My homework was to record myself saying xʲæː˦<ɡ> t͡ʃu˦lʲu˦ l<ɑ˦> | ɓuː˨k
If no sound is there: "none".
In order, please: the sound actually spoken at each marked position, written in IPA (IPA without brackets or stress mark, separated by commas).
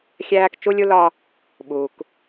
k, ɒ˦